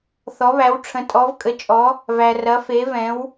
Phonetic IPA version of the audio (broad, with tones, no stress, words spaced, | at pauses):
θɔ˧˥βæ˧˥wʈ͡ʂʰə̃˧˥ tʼɔ˧˥vkʼə˧˥t͡ʃʼɔ˧˥ | væ˧rɐ˧˥fe˧˥ vɛ̃˧˥w